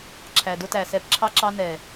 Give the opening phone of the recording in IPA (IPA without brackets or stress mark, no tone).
ǁʰ